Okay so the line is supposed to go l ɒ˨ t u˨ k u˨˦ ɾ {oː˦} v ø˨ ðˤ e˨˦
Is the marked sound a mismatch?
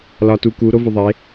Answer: yes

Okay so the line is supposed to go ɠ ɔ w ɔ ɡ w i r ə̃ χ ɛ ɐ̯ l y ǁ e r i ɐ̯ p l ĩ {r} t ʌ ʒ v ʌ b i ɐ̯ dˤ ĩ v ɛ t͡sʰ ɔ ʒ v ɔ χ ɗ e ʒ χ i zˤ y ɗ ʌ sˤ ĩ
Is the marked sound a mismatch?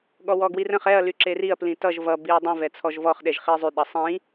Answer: yes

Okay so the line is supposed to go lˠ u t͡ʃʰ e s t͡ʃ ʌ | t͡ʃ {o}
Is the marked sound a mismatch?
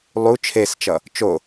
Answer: no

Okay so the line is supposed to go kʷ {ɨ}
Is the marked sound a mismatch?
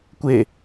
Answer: yes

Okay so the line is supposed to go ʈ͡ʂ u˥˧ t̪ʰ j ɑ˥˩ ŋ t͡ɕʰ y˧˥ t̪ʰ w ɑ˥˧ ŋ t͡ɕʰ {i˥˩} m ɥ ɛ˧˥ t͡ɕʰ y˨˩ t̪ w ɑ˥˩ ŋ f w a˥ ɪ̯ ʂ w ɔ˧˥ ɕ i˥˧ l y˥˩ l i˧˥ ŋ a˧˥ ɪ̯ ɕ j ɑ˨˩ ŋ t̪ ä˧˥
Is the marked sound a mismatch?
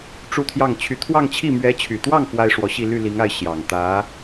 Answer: no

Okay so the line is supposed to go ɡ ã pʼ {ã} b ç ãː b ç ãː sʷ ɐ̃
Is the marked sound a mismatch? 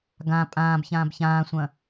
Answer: yes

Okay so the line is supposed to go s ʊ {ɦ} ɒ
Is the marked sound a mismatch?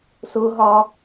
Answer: no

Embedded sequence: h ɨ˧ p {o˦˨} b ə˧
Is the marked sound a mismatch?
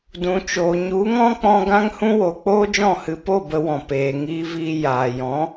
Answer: no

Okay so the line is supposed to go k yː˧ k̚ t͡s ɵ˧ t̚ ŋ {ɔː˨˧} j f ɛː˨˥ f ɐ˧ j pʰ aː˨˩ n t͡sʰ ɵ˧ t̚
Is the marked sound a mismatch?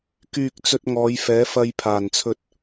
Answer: no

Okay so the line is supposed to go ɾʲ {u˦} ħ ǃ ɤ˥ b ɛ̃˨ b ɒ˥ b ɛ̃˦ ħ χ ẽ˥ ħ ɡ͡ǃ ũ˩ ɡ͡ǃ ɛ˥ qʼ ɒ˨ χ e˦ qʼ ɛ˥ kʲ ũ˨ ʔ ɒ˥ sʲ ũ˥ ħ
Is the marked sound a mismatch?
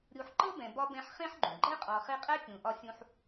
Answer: no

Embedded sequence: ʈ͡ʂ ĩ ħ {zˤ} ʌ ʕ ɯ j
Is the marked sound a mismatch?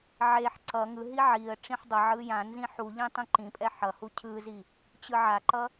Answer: yes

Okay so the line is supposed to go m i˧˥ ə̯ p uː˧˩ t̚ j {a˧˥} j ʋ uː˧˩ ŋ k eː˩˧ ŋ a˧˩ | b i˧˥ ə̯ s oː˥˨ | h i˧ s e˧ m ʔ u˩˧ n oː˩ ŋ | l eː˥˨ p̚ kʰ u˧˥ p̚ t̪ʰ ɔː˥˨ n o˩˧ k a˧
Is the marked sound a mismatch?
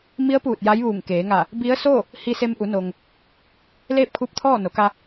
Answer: no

